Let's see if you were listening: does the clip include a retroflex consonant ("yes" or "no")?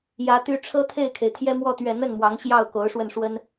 yes